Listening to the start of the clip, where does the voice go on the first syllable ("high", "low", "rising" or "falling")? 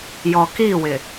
low